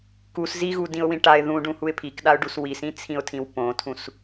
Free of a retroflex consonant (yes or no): no